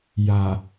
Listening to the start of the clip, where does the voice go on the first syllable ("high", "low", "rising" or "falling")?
low